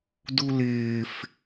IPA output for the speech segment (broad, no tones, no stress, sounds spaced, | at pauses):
d u l ɪː f